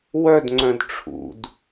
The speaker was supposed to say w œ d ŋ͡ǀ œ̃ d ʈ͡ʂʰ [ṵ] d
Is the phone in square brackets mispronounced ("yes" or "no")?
no